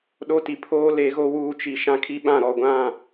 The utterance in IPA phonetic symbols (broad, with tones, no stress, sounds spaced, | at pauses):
ɗ o˦ t i˨ pʰ oː˦ l e˨˦ ɣ o˦ w uː˦ t͡ʃ i˨ ʃ ã˦ kʰ i˦ ɓ ã˦˨ ɾ ɔ˨ ɡʷ ã˦˨